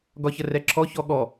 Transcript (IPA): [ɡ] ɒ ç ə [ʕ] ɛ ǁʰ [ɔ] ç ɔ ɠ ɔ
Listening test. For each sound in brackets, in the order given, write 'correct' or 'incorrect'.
correct, incorrect: r, correct

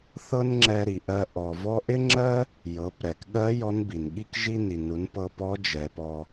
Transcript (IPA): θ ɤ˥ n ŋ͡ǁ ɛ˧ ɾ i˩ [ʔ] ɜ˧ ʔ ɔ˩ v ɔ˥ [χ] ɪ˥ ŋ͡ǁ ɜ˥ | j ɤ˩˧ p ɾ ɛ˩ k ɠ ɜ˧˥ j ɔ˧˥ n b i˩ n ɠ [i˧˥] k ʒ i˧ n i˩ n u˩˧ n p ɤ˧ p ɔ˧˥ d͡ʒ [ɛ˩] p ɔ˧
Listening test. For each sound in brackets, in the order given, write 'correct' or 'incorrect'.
correct, incorrect: ʔ, incorrect: i˥, incorrect: ɛ˩˧

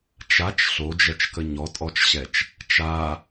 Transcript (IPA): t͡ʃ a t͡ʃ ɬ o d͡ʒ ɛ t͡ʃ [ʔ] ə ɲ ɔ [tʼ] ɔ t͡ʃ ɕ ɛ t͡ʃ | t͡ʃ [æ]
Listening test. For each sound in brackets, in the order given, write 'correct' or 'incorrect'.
incorrect: k, correct, incorrect: a

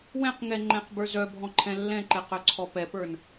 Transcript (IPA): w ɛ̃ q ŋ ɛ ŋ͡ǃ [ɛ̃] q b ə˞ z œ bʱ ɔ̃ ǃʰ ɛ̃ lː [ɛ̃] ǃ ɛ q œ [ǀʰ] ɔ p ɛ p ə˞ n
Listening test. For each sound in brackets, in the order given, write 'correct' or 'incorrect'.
correct, correct, correct

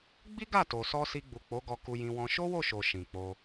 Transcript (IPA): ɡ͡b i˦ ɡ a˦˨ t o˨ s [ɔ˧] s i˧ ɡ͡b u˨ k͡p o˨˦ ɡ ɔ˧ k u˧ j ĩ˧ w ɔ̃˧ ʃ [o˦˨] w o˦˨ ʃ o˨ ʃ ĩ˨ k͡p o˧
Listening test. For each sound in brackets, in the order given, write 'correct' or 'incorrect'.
correct, incorrect: o˦

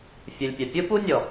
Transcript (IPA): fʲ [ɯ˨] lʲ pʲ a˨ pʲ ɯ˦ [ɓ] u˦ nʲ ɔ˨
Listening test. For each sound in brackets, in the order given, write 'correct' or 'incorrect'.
correct, incorrect: p

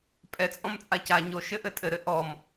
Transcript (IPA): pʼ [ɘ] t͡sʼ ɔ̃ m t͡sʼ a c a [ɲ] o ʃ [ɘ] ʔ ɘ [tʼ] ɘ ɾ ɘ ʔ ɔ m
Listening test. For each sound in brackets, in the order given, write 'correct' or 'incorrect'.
incorrect: ɛ, correct, correct, correct

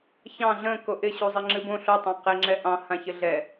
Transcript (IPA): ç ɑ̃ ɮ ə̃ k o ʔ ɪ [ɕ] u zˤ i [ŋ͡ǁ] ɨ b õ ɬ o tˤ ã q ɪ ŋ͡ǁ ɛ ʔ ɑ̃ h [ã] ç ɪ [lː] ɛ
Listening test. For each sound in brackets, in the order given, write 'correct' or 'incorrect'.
correct, correct, correct, incorrect: ɮ

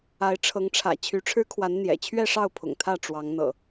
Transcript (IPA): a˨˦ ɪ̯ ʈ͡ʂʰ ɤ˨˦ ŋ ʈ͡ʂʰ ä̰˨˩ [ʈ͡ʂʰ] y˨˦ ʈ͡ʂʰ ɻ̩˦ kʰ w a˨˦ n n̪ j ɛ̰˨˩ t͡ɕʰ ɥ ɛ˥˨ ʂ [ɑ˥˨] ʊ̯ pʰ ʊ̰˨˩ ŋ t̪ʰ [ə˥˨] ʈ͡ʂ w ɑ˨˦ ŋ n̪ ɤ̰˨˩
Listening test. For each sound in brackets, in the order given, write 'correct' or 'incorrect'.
incorrect: t͡ɕʰ, correct, incorrect: ä˥˨

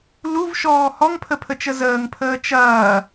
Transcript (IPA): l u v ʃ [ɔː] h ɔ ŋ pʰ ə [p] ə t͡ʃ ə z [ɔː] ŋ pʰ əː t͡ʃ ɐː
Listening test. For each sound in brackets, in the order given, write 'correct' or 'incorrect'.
correct, incorrect: pʰ, incorrect: əː

